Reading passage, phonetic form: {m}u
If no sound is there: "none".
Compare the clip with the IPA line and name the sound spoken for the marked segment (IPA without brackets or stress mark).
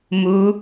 m